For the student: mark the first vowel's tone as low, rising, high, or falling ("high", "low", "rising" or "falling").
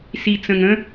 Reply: low